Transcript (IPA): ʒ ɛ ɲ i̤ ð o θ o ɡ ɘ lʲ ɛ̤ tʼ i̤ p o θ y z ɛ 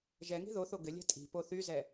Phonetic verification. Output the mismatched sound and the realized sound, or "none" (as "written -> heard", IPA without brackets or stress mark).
ɲ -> ŋ